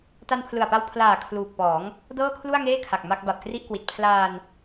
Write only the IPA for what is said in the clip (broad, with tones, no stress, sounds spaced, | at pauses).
t a˧ n pʰ l ɯ˨˩ a̯ p a˧ w pʰ l aː˨˩ kʰ l uː˨˩ k̚ p ɔː˩˦ ŋ | d ɤː˥˩ kʰ l u˥˩ a̯ ŋ eː˥˩ kʰ a˨˩ k̚ m a˥˩ k̚ b a˨˩ p̚ k r i˥˩ ʔ k w i˨˩ t̚ pʰ l aː˧ n